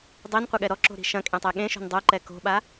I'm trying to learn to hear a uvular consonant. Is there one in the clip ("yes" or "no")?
yes